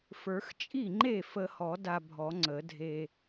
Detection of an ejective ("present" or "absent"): present